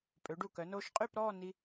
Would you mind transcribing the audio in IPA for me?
pʼ ø˩˧ ɖ u˧˩ k œ˩˧ n oː˧ ʃ qʼ y˥˧ p ɾ ɔː˥˧ n i˧

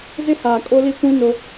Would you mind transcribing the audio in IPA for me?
z ɪ˦ h aː˨ kʼ o˦ l i˦ kʷ ĩ˦ n o˦

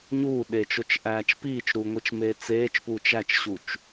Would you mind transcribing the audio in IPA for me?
ɲ uː ɗ eː t͡ʃ o t͡ʃ ʔ æː t͡ʃ p iː t͡ʃ ɾ uː ŋʷ i t͡ʃ m eː t͡s eː t͡ʃ p uː t͡ʃ æ t͡ʃ ɕ u t͡ʃ

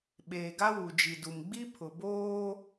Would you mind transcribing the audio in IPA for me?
ɓ eː˨ ɡ a˦ w u˨ d͡ʒ i˨ d u˨ m ɡ͡b i˦ pʰ ʊ˨ b oː˦

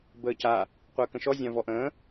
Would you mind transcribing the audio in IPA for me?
b əː c a | qʷ əː k ə̃ ʃ ɔ zʲ ã v ɔ ʔ ə̃ː

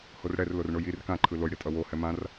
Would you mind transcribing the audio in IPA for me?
h o r ɽ ɛ r l o r ɳ o j i r k ã ǃʰ ɯ l o j ɽ i tʼ ʌ w o h ɛ m ã r

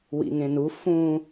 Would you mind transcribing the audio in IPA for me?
w ḭ ŋ ẽ n u f ũ

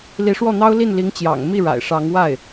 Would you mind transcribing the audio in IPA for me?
l i˧˥ ʂ w ɔ˥˩ n̪ ɑ˥ ʊ̯ l i˥˩ n l i˧˥ ŋ t͡ɕ j ɑ̰˨˩ ŋ m i˥˩ ɻ a̰˨˩ ɪ̯ ʂ ɑ˧˥ ŋ w a˥˩ ɪ̯

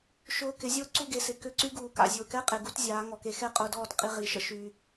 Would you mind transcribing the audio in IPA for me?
ʃ ʊː˧ k ɪ˨˦ zʲ ʊː˦ ǀ u˦˨ ɡ e˨ s ɪ˨ k ʏ˦˨ ǀ y˦ ɡ uː˨ k a̰˨ zʲ ʊː˨ k ɛ˦ qʼ e˨ ɡ u˦ t zʲ aː˨˦ ŋ ɔ˨ k e˧ x ɛ˦ qʼ ʊː˧ d ɔː˦˨ t qʼ i˧ ʁ i˨˦ ʃ ə̰˦ ʃ y˧

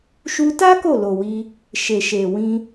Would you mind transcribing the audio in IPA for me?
ʃ u˧ t a˦ k o˦˨ l o˨ w i˧ | ʃ e˨ ʃ e˨ w ĩ˧

